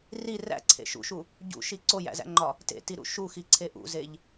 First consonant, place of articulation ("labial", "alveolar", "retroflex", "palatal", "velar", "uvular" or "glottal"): alveolar